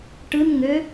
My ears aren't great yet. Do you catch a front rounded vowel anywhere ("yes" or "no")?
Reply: yes